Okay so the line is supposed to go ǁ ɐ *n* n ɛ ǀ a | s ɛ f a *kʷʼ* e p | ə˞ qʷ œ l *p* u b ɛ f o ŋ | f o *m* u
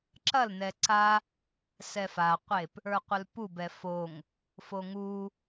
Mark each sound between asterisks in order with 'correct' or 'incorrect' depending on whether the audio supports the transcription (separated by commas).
incorrect, incorrect, correct, incorrect